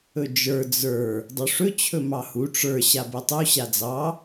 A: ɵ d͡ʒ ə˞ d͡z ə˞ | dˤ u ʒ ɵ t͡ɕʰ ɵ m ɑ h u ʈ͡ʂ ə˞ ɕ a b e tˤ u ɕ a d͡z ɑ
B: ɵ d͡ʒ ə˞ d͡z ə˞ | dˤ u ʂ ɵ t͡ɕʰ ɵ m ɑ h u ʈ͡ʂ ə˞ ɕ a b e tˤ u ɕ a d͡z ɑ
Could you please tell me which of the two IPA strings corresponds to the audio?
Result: B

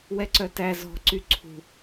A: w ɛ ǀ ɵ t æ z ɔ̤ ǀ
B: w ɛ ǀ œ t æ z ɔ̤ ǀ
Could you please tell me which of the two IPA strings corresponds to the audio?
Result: B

